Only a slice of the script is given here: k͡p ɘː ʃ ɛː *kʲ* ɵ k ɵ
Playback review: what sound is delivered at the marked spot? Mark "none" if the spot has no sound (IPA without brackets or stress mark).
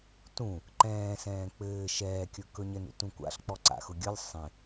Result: kʲ